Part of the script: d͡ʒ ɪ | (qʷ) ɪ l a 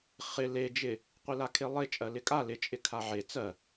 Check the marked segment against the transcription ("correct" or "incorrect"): correct